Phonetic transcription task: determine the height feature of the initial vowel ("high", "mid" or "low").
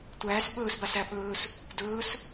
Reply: low